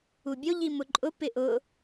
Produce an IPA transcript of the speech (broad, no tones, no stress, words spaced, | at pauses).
ubʲo ʎimʊǃʼʊ pɪʔʊ